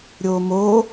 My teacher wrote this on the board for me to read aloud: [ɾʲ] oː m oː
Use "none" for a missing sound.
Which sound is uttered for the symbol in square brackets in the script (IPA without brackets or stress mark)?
ɾʲ